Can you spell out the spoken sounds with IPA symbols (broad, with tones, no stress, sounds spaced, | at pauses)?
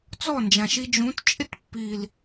t͡s ɔ˦˨ n d͡ʒ ã˨ ʃ i˧ d͡ʒ ũ˨˦ t t͡ʃʼ ɪ˦ t pː i˨ l